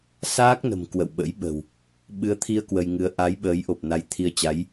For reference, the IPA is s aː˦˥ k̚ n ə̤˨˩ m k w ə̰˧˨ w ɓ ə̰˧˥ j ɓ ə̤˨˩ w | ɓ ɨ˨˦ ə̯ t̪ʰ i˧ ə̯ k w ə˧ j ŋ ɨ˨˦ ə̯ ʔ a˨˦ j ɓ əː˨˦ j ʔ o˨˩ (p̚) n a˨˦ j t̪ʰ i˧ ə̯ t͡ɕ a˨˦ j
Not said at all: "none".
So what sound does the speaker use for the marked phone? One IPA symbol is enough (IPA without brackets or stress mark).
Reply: p̚